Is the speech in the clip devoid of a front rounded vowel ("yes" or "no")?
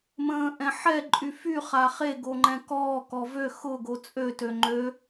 no